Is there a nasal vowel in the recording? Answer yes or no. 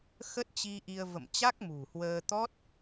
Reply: no